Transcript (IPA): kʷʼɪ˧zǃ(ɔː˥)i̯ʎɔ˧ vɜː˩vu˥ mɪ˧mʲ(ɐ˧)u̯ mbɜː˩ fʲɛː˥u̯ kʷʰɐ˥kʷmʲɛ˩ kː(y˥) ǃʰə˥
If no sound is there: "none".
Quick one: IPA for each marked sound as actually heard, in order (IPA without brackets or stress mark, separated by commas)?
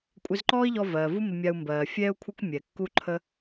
ɔː˥, a˧, u˥